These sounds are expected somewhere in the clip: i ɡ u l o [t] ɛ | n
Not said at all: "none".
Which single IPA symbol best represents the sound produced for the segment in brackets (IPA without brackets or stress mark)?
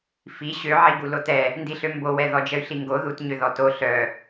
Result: t